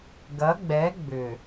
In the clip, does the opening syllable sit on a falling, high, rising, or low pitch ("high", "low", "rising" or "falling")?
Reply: rising